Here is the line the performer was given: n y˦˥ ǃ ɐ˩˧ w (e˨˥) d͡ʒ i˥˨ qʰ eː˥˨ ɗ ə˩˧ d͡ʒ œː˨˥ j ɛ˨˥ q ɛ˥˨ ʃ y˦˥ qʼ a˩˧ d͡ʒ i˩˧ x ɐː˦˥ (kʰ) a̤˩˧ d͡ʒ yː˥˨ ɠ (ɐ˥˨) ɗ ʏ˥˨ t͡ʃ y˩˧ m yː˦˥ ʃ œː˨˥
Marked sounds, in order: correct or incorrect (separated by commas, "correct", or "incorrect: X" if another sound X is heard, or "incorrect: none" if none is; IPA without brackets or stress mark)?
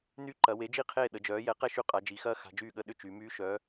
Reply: correct, incorrect: x, incorrect: ə˥˨